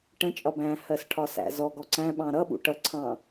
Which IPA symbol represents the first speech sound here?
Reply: ʈ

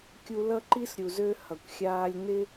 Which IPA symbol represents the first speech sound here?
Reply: kʲ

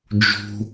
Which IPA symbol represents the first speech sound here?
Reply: d͡ʒ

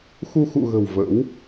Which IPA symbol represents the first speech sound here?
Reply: x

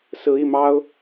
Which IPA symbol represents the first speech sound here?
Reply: s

